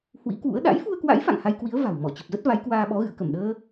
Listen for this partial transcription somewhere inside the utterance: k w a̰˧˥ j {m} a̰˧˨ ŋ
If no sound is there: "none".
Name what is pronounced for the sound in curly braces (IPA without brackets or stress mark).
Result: f